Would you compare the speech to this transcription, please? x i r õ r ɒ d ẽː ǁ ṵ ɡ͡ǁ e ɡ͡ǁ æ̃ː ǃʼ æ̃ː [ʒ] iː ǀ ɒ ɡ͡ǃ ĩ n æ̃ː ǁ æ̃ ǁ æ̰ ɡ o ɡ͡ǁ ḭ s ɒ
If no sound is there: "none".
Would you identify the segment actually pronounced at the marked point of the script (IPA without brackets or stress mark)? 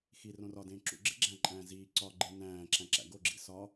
z